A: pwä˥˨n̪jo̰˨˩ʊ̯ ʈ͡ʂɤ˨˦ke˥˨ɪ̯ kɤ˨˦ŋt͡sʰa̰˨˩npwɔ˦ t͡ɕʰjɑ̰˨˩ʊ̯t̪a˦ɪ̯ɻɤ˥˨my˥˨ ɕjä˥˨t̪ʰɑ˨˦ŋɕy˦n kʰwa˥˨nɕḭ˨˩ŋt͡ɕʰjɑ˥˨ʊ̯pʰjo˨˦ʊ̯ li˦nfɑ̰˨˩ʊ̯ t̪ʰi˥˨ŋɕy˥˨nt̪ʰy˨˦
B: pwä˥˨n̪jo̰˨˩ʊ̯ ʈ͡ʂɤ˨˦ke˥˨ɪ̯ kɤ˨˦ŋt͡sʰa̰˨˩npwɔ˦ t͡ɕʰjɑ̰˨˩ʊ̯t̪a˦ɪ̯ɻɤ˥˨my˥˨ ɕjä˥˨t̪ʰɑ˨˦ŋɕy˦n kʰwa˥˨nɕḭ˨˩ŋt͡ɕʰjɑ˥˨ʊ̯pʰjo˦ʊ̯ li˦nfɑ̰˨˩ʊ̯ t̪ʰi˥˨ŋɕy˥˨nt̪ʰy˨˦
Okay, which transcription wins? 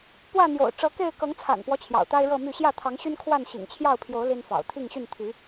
A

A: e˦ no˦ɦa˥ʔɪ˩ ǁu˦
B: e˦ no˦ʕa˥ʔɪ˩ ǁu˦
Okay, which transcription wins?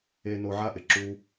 B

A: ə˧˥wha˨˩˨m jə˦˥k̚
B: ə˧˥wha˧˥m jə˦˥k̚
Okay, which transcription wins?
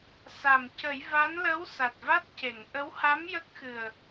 B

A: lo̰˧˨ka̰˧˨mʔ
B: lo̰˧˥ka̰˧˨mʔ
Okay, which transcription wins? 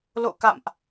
A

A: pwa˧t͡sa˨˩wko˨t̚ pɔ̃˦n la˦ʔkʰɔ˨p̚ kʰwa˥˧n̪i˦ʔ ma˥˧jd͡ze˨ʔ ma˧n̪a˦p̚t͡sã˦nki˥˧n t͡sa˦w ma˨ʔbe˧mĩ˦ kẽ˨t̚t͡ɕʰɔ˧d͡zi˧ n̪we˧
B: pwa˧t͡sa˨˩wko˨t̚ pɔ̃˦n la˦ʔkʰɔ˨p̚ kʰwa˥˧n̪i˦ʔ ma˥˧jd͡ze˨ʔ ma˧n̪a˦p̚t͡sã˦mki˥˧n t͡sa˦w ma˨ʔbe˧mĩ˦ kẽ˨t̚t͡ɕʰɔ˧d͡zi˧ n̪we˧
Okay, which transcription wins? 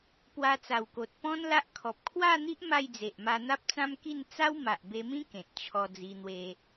B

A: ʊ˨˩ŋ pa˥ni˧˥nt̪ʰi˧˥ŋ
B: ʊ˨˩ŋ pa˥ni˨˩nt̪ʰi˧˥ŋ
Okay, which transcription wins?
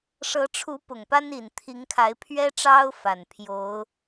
B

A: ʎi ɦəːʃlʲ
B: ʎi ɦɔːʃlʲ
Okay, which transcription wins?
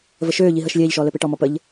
A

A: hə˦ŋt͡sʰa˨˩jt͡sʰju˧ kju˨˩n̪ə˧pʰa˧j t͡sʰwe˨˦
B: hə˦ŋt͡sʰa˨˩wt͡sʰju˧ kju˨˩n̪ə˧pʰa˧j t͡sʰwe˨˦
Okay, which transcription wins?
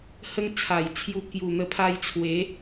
A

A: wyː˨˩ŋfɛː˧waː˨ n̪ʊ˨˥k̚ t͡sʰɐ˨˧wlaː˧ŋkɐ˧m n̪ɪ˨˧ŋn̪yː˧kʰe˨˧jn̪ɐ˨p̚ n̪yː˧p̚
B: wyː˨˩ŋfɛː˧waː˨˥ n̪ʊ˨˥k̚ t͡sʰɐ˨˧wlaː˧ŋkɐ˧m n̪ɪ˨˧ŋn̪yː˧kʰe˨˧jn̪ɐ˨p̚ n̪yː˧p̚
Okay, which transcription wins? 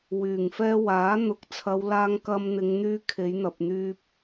B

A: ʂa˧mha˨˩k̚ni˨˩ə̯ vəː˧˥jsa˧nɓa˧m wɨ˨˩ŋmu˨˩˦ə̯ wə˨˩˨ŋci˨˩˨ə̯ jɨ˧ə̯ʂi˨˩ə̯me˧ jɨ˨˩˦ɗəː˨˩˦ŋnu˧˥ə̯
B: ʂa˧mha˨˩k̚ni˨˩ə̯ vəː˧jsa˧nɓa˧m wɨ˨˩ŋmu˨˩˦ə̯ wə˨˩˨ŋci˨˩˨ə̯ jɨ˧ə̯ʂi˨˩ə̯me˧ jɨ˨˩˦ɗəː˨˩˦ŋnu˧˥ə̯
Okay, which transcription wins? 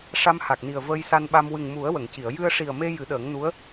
B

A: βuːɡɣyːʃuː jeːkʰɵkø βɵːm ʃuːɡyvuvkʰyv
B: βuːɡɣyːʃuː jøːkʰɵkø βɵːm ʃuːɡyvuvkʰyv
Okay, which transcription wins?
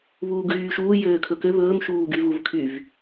B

